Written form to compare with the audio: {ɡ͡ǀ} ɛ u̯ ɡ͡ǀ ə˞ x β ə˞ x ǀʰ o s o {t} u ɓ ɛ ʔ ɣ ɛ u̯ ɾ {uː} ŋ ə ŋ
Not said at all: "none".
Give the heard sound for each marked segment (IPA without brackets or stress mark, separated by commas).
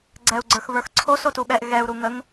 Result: ɡ͡ǀ, t, u